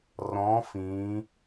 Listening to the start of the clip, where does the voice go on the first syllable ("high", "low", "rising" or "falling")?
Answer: rising